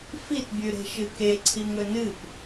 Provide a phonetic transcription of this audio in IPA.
f i t bʲ ʉ ɾ e̤ ʃ ɨ k e ǀʰ i ŋ ɵ n ɨ p

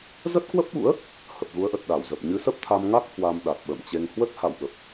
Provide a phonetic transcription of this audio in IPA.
z ə˦˥ t̚ k w ə˦˥ p̚ ɓ ṵ˧˥ ə̯ | h ə˨˩ p̚ ɣ u˨˦ ə̯ ʔ ə˨˩ t̚ ɗ a˧˩ w z ə˨˩ p̚ ɲ ɨ˨˦ s ə˦˥ p̚ t̪ʰ a˧ m ŋ a˦˥ k̚ h w a˧ m ɗ a˨˩ t̚ ɓ ə̰ː˧˨ m t͡ɕ e˧ ŋ h w ə˦˥ t̚ h a̰˧˨ w ɓ ə˨˩ p̚

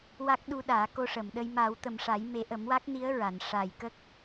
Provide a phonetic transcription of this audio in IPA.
w a˦˥ k̚ ɗ u˧ ɗ aː˨˩˦ k o˧ ʂ ə˨˩˨ m ɗ ə˧ j m a˨˩˦ w t̪ ə˨˩ m ʂ a˨˩˦ j m e˨˩˦ ʔ ə˨˩˦ m w a˦˥ k̚ n i˧˥ ə̯ ɹ a˨˩˨ n ʂ a˨˩ j k ə˦˥ k̚

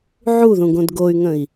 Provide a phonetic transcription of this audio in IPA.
ʕ u ð ũ ɡ õ d ɡ o y̯ ŋ ə̃ i̯

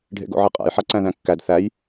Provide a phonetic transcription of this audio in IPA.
ɖʱ ḛ ɡ o̰ ʕ e qʼ æ̰ j ħ a ǀ æ̃ ð æ̃ kː æ d θ æ j

